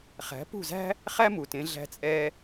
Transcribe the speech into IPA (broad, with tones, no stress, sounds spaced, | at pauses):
χ æ̤˩˥ p ṳ˥˩ z æ̤˥ | χ æ˥ m u˩ t ẽ˧ ɮ æ̤˧ t͡sʼ ɛ˧